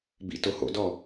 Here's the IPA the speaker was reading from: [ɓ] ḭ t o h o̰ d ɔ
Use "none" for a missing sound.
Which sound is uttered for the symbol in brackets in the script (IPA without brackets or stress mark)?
b